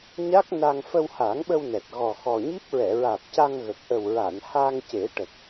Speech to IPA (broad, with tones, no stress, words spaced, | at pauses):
ɲa˦˥k̚ na˧ŋ fə˧wha˨˩˦ŋɓə˧wnɛ˨˩t̚ ɣɔ˨˩xɔ˨˩ɲi˦˥p̚ ɹɛ˨˩˨ɹaː˨˩p̚ ca˧ŋɣə˨˩k̚ ʔə˨˩wɹa˨˩˨n ha˧ŋce˨˩˦ ʈə˨˩k̚